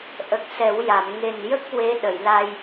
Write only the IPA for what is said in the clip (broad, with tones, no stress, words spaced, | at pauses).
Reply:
ʔə˨˩k̚ sɛ˨˩˦wja˨˩˨m ŋe˨˩njə˦˥k̚ we˧˥ ɗə˨˩˨jla˧j